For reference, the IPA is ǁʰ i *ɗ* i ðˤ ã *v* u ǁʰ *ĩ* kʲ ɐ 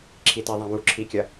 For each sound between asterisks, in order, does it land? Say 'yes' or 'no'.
no, no, no

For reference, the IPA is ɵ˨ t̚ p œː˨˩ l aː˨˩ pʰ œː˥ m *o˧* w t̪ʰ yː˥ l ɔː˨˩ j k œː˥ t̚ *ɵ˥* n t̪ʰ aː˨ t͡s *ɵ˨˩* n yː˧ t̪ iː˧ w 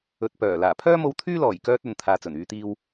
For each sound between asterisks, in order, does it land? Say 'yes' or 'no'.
yes, no, yes

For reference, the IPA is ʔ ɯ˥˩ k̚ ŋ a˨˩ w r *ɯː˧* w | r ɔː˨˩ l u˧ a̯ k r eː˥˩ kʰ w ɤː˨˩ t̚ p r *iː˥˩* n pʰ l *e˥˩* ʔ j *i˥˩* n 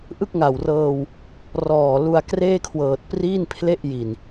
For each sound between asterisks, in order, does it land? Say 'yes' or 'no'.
no, yes, yes, no

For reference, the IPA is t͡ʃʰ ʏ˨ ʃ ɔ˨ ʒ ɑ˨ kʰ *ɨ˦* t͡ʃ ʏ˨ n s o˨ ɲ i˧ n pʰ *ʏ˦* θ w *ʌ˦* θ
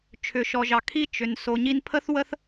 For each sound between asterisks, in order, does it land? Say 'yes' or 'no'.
no, no, no

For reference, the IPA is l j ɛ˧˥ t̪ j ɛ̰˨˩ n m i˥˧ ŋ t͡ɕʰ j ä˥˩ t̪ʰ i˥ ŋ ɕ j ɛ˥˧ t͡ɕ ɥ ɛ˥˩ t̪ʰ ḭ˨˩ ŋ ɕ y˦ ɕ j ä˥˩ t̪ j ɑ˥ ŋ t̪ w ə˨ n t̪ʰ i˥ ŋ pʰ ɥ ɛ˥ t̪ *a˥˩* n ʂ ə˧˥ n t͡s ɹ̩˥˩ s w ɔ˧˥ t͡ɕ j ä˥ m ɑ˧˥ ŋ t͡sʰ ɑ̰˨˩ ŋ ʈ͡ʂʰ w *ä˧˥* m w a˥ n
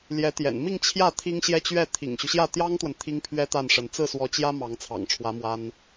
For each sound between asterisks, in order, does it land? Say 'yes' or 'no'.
yes, yes

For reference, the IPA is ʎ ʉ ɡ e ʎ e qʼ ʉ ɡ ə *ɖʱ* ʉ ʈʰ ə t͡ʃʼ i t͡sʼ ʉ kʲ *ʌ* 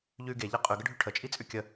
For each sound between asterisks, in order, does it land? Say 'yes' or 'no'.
yes, no

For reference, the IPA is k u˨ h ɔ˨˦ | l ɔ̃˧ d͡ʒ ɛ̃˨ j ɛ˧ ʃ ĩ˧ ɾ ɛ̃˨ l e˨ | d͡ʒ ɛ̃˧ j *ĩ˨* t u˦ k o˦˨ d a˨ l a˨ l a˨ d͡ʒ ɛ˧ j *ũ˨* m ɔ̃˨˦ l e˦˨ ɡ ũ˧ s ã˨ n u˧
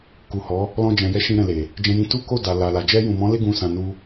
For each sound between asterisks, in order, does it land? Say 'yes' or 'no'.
no, yes

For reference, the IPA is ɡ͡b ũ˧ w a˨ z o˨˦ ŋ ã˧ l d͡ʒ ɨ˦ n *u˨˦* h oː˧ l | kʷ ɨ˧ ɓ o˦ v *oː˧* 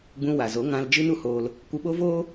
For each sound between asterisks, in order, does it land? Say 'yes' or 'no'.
no, no

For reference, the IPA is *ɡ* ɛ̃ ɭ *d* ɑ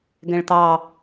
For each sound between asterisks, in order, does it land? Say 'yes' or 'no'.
yes, no

